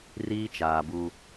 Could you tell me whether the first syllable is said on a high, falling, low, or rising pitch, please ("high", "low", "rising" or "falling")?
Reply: high